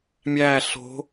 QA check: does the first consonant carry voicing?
yes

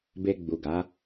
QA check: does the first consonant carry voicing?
yes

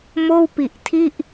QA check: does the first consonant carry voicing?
yes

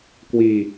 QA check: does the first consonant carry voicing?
no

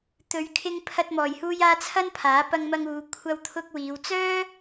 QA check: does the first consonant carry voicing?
no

